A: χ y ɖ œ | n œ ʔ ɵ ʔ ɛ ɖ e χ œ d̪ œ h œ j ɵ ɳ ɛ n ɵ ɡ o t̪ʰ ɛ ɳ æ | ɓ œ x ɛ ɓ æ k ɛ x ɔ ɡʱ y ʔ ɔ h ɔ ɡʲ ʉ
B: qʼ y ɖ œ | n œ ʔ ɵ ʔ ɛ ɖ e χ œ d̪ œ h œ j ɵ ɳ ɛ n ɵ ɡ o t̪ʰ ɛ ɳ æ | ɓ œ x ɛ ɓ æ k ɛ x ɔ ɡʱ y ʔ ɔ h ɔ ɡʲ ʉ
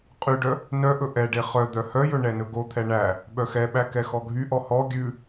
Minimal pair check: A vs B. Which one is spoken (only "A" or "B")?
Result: B